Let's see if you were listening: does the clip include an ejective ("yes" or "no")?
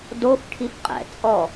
yes